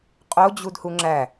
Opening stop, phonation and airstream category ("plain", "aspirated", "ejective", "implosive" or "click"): ejective